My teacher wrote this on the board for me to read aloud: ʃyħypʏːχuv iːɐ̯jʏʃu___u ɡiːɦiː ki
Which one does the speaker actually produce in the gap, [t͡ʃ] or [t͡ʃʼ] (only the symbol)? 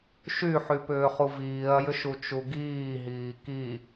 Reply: t͡ʃ